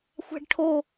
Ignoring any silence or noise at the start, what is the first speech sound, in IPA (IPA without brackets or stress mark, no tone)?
xʷ